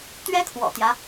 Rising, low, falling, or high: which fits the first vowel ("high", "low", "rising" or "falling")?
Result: high